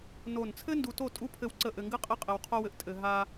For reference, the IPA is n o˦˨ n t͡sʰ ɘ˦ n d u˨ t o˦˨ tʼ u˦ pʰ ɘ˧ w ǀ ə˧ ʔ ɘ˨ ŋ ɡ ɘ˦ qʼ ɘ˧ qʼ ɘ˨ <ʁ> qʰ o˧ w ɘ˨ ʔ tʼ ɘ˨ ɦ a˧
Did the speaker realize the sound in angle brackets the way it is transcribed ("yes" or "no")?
no